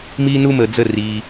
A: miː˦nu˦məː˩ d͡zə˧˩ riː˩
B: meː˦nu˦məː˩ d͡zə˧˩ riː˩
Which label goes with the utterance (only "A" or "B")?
A